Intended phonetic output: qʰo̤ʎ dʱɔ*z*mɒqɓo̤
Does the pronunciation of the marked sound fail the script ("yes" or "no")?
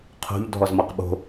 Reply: no